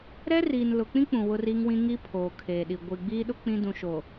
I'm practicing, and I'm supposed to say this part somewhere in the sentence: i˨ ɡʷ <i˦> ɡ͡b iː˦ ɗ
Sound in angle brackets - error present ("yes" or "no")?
yes